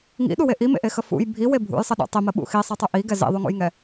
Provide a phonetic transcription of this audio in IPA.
ŋ ḭ ɗ u w e ʔ i m ḛ ʔ e x ə f ṵ j bʱ i w e bʱ ṵ j sˤ ə ɗ ṵ tˤ i m ə ɓ ṵ x i sˤ i tˤ u ʔ i ɡ ɛ z ḭ ðˤ u ŋ ṵ j ŋ ɛ

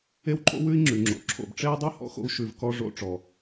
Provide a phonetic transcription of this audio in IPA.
e˥ w ǃʼ o̰˥ w ʉ˥ i̯ ŋ͡ǁ ʉ˩ ŋ͡ǁ o̰˩ ǁʰ o̰˩ b ʈ͡ʂ e˥ u̯ dˤ ʉ˥ h ɔ̰˧ x o̰˧ u̯ ʃ ʉ˩ v k ɔ˧ ʐ o̰˧ ʈ͡ʂ ɔ˩

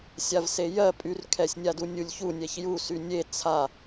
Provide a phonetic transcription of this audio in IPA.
sʲ a v s e j ɜ pʼ y r kʰ ɛ sʲ nʲ a d u nʲ u lʲ ç u nʲ ɛ ç j u s y nʲ e t͡sʰ a

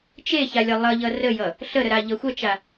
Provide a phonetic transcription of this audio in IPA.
t͡ʃ e ç a lʲ ʌ lˠ ʌ ʎ ʌ r ə j ʌ | ɬ ə ɾ ə ɾ a ʎ ʌ xʷ ʌ t͡ʃ a

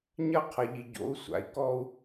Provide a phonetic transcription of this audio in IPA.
ɲ ɐ˦ qʰ ɐ˨ ʎ i˨ ɟ o̰˨˦ u̯ sʷ a̰˨ i̯ k ɔ˦ u̯

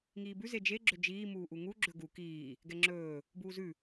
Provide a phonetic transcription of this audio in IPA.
ŋ iː b ʉ z e d͡ʒ e ɡ͡ǁ ɵ d͡ʒ iː m uː ʔ u ŋ u ɡ͡ǁ ɵ ɡ u k iː | ɡ ɛ ŋ͡ǁ ɵː | b uː z ʉ

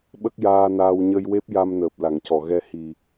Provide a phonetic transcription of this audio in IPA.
ɓ ə˦˥ k̚ j aː˧ n aː˧ w ɲ ə˧ j w e˦˥ p̚ j a˧ m n əː˨˩ p̚ l a˨˩˨ ŋ c ɔ˨˩˨ ɣ ɛ˧ h i˨˩

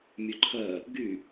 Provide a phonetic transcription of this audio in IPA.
mʲ œ ǃʰ ɜ | ɡ y

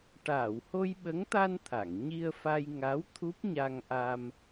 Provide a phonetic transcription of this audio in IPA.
ʈ aː˨˩˨ w h o˧ j ɓ ə˧˥ ŋ t̪ a˧ n t̪ʰ a˨˩˨ ŋ ɲ i˧ ə̯ f a˧ j ŋ a˧˥ w t̪ʰ u˦˥ p̚ ɲ a˧ ŋ ʔ a˧ m

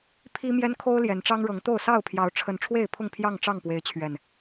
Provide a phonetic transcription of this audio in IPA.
pʰ i˦ m j ɛ˦ n kʰ o˦ ʊ̯ l j ɛ˨˦ n ʈ͡ʂ ɑ˦ ŋ ɻ ɤ˨˦ ŋ t̪ o˥˨ ʊ̯ s ɑ˥˨ ʊ̯ pʰ j ɑ˨˦ ʊ̯ ʈ͡ʂʰ ə˨˦ n ʈ͡ʂʰ w e˥˨ ɪ̯ pʰ ʊ˥˨ ŋ pʰ j ɑ˥˨ ŋ ʈ͡ʂ ɑ˥˨ ŋ p w e˨˦ ɪ̯ t͡ɕʰ ɥ ɛ˨˩ n

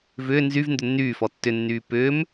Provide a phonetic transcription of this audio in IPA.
v ʏː n z y v n d ʏ nː yː f ɔ tː ʏ nː yː p ʏː m

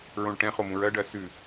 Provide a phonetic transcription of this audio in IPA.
ɹ õ ɭ ʈ ɛ̃ χ o m ũ ɹ ɜ ɖ ɜ s ʉ

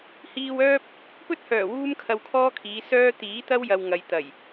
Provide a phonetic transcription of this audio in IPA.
h iː˧ w œː˥ p̚ | p ɵ˥ t̚ h œː˨˩ w uː˥ m kʰ ɐ˧ w kʰ ɔː˥ kʰ iː˨˧ s œː˥ t̪ iː˨˥ t̪ ɐ˥ w j ɐ˨ w ŋ ɐ˨ j t̪ ɐ˨˩ j

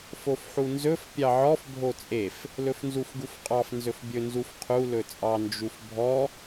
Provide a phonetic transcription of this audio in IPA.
f o f ħ u n z ɵ f pʲ ɑ ʕ ɔ f bʱ o t͡sʼ e f | l ɵ f n z u f ɡ u f qʼ ɑ f n z ɵ f bʲ ɵ n z u f qʰ u l ɵ t͡sʼ ɑ n d͡ʒ u f bʱ ɔ

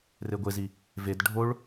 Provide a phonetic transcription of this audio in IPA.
r e ɡʷ e z i | v e d ɖʱ o ɭ

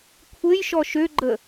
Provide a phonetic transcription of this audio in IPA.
kʷʰ ɘ j ʃ ɔ ʃ ø ɡ͡ǃ ə

